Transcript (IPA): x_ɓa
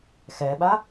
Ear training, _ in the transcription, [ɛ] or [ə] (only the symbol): ɛ